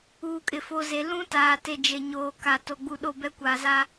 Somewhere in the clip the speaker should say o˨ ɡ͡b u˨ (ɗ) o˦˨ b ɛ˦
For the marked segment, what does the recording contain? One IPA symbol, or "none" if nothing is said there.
ɗ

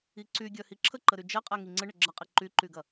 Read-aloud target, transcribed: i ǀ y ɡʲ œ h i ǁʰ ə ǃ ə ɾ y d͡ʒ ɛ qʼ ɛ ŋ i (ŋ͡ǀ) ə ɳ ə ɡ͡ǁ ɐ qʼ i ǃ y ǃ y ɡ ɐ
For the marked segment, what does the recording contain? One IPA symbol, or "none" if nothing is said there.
ŋ͡ǀ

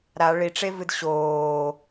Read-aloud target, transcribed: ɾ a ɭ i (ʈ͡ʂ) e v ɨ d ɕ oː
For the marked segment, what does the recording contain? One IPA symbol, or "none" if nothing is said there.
ʈ͡ʂ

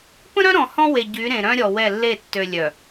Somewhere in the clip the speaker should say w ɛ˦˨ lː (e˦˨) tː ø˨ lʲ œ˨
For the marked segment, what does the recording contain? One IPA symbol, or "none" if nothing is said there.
e˦˨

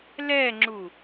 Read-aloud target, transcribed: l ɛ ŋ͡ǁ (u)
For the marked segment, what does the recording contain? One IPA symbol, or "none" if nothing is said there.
u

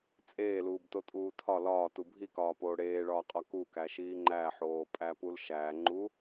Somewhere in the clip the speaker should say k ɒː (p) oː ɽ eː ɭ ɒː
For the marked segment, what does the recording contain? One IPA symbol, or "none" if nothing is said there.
p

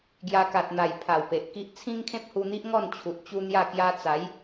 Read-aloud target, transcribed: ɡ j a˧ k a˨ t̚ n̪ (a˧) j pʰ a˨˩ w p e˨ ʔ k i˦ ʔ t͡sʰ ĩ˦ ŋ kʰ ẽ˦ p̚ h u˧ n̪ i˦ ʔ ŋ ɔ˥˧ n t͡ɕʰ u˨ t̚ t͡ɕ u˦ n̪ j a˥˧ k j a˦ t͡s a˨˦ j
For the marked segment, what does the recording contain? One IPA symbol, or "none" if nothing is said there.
a˨˩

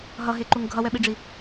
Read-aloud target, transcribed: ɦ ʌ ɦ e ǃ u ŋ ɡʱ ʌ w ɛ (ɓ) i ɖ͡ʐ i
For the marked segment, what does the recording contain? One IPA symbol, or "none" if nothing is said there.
ɓ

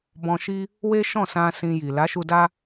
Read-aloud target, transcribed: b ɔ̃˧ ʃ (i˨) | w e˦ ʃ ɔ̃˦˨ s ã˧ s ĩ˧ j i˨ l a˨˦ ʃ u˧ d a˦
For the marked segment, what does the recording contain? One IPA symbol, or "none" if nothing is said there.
i˦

